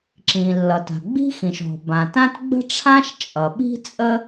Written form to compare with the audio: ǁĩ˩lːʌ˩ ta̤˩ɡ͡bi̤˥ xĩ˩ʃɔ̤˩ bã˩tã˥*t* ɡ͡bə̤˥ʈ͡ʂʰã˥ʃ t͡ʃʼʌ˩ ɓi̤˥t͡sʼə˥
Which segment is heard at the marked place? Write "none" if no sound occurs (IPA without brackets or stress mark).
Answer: t